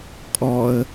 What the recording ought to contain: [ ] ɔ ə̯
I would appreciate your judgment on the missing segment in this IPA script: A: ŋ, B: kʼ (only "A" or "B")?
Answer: B